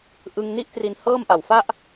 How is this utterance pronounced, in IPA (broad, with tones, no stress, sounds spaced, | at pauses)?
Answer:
ʔ ɯ˧ ŋ n i˥˩ ʔ t r i˧ n h ɤː˥˩ m ʔ a˨˩ w f a˥˩ ʔ